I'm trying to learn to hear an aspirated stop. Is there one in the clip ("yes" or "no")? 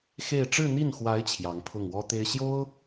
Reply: yes